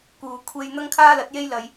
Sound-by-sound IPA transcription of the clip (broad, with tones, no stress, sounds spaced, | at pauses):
k uː˨ kʷʰ e˧ j n̪ ɐ˥ ŋ kʰ aː˥ l ɐ˨˥ t̚ j e˥ j l ɐ˨˧ j